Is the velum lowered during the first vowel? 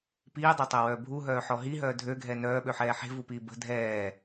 no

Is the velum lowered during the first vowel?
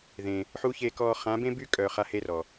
yes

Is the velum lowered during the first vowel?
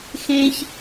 yes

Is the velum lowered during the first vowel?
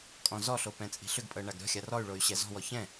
yes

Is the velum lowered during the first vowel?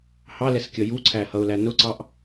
no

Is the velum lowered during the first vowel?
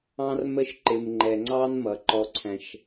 yes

